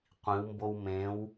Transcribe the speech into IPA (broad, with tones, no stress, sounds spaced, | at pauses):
qʷ ĩ˩˧ w m b o˧ w m ẽ˩˧ w